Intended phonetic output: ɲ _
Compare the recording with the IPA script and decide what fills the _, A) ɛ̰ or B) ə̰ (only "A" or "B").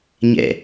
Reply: A